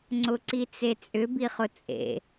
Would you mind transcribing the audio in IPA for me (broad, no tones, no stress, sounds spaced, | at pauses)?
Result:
ŋ͡ǀ ʊ ǀ i t͡s e t͡sʼ ʏ b i χ ʊ t͡sʼ ḛ